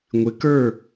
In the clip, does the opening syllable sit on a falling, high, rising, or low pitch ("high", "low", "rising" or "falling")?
rising